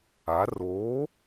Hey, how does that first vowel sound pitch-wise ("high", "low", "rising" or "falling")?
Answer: rising